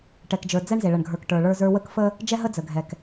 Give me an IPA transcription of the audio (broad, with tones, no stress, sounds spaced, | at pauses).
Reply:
ʈ ɛ˨ k d͡ʒ ə˞˨ d͡z ɛ˦ ɳ z e˨ ɭ ə˨ ɳ ɡʱ ə˞˨ k ʈ ə˞˨ ɭ ə˞˦ z ə˞˦ w ə˦ k f ə˦ | d͡ʒ ɛ˦ ɦ ə˦ d͡z ə˨ ɡʱ ɛ˨ k